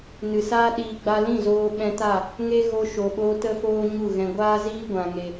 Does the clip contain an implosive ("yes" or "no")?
yes